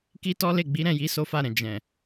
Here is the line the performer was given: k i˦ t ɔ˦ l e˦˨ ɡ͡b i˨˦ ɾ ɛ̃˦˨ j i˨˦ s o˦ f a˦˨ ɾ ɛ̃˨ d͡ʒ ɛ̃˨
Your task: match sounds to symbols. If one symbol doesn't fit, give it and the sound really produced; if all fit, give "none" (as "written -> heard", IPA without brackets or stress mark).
none